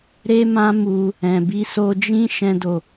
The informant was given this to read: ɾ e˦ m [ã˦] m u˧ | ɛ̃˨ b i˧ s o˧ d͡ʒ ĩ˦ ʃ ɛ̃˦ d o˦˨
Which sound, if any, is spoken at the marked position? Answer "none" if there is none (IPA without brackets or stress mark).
ã˦